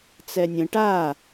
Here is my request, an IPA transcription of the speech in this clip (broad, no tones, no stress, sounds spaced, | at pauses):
t͡s ɛ nʲ ə̃ ʈ a